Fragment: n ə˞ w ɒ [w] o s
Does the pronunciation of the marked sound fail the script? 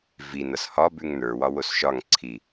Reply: no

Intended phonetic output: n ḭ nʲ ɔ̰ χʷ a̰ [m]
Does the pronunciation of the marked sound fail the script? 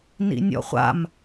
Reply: no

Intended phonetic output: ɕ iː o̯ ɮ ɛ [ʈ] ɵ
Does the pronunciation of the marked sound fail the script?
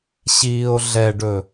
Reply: yes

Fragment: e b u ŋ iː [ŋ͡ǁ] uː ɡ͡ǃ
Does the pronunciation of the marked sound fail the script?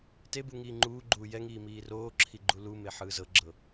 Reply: yes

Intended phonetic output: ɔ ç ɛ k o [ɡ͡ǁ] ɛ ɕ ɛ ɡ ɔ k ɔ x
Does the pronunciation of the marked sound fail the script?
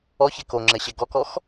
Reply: yes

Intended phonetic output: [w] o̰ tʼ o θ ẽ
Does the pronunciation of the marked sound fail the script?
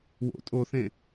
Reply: no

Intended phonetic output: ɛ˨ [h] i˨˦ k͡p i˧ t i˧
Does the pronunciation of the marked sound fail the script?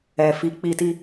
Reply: yes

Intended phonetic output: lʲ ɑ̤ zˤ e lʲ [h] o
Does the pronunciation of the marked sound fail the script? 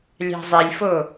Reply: yes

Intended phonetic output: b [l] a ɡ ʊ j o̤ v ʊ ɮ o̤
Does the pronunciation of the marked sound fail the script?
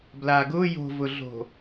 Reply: no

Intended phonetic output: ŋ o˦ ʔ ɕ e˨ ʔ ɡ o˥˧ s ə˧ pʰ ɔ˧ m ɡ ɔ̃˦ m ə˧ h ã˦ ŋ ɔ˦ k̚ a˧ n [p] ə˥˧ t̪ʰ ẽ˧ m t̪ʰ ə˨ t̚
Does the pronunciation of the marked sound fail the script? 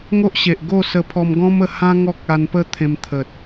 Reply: no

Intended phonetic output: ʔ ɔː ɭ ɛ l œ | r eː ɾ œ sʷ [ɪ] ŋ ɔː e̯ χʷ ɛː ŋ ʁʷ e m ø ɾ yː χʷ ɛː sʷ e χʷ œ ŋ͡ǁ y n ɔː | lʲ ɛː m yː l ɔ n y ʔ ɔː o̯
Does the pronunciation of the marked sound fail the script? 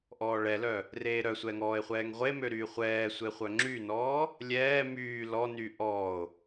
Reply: yes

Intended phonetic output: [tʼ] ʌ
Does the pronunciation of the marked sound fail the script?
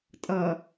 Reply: no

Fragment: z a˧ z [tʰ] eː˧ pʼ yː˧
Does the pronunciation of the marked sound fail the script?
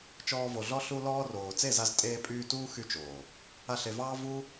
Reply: yes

